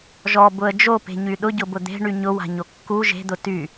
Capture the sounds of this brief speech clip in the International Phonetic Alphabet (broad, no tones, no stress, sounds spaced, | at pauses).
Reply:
ʒ ɔ b ʊ ə̯ d͡ʒ o p e̤ ɲ y ɗ ʊ ɟ ʊ b ʊ d̪ e̤ ɳ y ɲ ʊ w a̤ ɲ o kː u ʒ e̤ d̪ ʊ t y